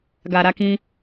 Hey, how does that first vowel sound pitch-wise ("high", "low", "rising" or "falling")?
low